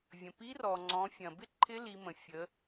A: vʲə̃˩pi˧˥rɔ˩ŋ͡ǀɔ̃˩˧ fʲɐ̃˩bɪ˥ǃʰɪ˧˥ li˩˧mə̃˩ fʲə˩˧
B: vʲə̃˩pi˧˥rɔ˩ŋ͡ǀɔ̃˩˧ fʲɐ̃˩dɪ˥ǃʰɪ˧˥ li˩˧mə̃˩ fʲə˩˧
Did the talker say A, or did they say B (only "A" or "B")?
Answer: A